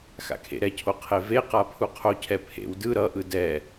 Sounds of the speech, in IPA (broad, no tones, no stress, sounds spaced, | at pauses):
x a̰ kʰ ḛ ɾ ɛ cʰ o qʰ e v e q a pʰ u qʰ o cʰ ɛ pʰ ḛ w d ɯ ɾ ʌ ʔ ɯ d ɛ